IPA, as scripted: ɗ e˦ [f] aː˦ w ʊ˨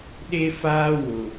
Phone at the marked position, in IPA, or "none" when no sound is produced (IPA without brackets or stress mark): f